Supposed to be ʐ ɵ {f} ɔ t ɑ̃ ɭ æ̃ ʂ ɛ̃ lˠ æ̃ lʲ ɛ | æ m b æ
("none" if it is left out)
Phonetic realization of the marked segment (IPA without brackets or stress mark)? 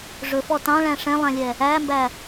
f